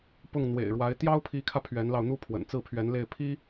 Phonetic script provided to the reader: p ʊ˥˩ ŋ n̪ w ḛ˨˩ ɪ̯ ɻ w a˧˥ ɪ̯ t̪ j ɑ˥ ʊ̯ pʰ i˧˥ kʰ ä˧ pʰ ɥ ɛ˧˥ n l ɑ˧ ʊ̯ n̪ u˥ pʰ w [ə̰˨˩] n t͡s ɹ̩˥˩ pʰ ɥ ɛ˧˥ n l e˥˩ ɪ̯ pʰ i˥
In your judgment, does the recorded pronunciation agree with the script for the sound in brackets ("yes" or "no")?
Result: yes